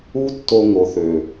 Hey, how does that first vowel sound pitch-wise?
high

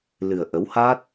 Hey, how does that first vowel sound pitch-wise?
low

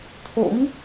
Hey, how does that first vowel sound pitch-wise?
rising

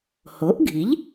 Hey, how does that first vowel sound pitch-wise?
rising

